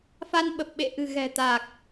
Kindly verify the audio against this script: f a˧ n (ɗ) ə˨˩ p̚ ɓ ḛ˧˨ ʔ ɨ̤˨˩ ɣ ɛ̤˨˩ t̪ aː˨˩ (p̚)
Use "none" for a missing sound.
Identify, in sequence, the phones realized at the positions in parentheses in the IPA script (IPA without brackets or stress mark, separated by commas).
ɓ, k̚